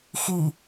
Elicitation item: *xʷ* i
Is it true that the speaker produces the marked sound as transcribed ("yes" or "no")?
no